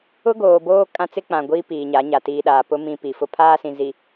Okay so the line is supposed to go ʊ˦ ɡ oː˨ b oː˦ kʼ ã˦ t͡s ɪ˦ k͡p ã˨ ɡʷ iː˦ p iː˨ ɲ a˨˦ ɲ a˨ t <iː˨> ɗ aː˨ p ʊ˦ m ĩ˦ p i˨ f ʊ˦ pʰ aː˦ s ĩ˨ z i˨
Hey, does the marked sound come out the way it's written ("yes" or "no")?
yes